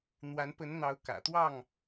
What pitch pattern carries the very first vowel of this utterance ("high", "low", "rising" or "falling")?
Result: rising